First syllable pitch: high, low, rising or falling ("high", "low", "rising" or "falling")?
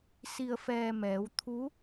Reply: low